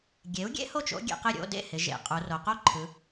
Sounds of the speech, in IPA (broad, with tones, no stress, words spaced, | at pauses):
ɡʲe˩˥u̯ɡʲḛ˥ho˥˩t͡ʃ o̰˥ ɡʲḛ˩˧qɪ˥˩ɾʲo̰˧˥˧ dḛ˥˩ hɪ˩˧ʒḛ˩˧qʼu˩˧ro˩˧ qo˥ǃʰɯ˩˧